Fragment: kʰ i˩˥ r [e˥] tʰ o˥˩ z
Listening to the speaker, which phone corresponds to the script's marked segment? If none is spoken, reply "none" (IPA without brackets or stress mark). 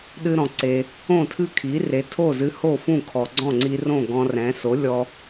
e˩˥